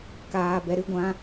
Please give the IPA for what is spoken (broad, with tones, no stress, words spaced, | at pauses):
kaː˧bɛ˧ ɾɨ˦ ɡʷã˦